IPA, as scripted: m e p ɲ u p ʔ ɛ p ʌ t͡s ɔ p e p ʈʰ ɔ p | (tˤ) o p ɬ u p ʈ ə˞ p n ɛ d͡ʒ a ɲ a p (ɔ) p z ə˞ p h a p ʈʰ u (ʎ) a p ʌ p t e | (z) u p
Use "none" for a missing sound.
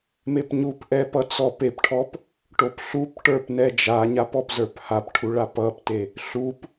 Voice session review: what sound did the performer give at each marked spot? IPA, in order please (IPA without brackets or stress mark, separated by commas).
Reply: ʈ, ɔ, ɭ, ɬ